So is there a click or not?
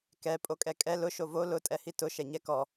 no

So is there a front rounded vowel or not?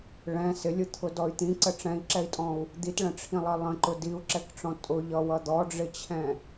yes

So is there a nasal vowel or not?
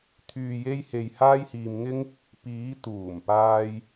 no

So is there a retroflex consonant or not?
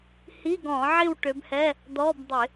yes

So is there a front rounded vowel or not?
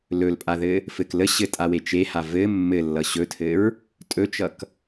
no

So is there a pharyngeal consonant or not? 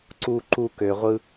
no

